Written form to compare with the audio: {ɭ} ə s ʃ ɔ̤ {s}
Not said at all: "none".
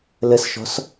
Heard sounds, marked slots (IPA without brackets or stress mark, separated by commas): l, s